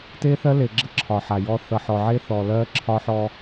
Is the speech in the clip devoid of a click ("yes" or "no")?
no